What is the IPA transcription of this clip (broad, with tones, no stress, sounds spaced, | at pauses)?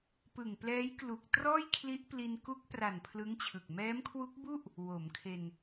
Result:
p ɯ˨˩ ŋ p l ɛː˦˥ j k l u˨˩ k̚ t r ɔː˥˩ j kʰ l i˦˥ ʔ p l i˧ n k u˦˥ k̚ p r a˨˩ n pʰ l ɯ˦˥ ŋ t͡ɕʰ ɯ˨˩ k̚ m ɛː˦˥ m kʰ w u˦˥ k̚ b u˥˩ ʔ | w o˩˦ m kʰ e˧ n